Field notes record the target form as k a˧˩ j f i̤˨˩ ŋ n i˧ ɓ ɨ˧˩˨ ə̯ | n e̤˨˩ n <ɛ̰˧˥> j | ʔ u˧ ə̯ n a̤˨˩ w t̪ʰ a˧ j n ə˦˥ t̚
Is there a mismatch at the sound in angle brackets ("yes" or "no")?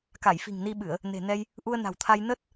yes